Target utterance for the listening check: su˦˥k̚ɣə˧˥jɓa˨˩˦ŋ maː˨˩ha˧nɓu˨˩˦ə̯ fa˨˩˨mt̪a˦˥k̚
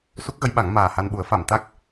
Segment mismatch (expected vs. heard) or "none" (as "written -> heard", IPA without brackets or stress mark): none